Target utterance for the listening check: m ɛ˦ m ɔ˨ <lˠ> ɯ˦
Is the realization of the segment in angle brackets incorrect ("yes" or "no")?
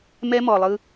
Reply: no